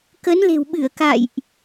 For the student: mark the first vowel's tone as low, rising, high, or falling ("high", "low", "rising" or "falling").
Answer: rising